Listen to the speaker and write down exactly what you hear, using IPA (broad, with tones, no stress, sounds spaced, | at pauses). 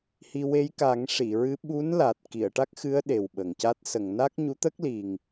h i˧ w e˧˥ j k a˨˩˦ ŋ ʂ i˨˩˨ ɹ ɨ˧˥ ɓ u˧˥ n l a˨˩ t̚ k i˨˩˨ ə̯ ʈ a˦˥ k̚ x ɨ˧˥ ə̯ ɗ e˨˩ w ɓ ə˨˩ ŋ c a˦˥ t̚ s ə˨˩˨ ŋ n a˦˥ k̚ ɲ u˧˥ t̪ ə˦˥ k̚ l i˨˩ ŋ